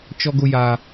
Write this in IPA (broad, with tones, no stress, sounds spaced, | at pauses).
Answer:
t͡ʃ ɔ˦ ɡ ʊ˦ j a˦